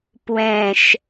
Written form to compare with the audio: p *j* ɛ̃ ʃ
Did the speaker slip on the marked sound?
yes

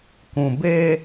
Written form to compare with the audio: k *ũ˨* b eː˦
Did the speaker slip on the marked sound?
no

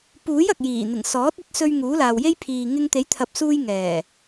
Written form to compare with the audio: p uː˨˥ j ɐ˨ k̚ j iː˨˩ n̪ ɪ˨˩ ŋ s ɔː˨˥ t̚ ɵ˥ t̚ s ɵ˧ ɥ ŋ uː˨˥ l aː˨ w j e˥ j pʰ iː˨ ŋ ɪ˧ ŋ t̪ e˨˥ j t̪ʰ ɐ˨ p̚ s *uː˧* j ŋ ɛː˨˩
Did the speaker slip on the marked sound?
no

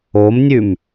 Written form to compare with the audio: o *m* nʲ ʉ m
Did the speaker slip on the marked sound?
no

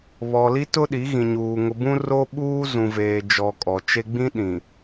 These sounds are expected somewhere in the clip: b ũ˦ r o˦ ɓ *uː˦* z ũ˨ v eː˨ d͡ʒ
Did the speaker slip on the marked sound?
no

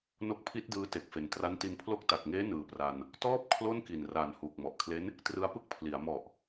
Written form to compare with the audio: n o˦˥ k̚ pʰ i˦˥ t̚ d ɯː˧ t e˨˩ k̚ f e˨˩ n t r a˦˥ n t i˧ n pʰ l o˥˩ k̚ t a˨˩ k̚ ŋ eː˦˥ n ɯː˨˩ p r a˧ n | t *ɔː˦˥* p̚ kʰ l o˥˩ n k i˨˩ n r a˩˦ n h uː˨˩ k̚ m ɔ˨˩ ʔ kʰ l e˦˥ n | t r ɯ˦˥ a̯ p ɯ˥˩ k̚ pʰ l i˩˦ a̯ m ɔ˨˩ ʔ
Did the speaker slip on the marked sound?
yes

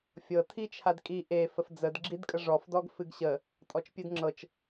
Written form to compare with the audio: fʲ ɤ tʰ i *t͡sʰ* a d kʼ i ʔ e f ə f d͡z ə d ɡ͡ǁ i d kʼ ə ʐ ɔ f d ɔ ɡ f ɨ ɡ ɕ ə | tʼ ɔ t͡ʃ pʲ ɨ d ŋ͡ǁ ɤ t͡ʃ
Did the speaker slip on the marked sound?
yes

